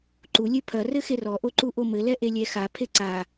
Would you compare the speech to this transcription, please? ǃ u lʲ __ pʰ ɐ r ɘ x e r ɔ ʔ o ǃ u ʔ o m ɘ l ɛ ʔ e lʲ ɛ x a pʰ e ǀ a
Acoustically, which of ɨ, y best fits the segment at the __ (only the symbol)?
ɨ